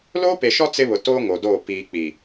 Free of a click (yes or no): yes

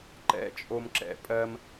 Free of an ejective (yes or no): no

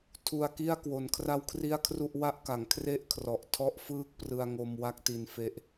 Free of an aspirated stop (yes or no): no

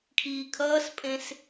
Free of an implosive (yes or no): yes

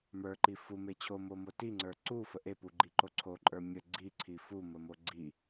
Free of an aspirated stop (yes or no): no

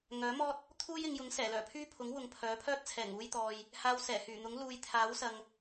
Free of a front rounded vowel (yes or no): no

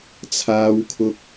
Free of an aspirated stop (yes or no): no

